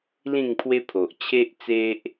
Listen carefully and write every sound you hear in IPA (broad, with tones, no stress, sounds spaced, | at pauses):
l ĩ˥˧ ŋ pʰ w e˦ pʰ o˨ ʔ t͡ɕʰ e˦ ʔ t͡s e˦ ʔ